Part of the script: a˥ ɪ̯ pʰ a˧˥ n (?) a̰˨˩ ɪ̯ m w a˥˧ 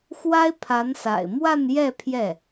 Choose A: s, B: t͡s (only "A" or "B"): A